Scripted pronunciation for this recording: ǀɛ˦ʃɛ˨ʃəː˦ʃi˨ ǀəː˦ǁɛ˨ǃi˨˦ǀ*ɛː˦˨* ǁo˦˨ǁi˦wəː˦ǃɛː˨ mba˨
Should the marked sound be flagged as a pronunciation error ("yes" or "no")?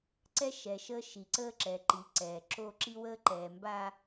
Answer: yes